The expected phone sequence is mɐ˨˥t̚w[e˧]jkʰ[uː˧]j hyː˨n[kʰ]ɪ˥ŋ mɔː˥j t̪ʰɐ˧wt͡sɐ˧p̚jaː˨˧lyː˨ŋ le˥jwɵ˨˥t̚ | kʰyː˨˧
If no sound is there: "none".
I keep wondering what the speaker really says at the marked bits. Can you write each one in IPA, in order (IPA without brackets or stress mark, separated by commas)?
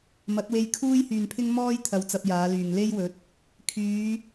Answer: e˧, uː˥, pʰ